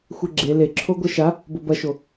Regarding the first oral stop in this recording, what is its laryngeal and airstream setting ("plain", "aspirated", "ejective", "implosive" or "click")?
click